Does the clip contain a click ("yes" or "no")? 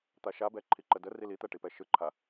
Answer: yes